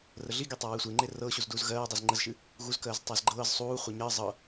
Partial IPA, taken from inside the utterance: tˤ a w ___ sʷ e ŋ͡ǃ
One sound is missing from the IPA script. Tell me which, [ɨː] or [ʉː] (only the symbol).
ɨː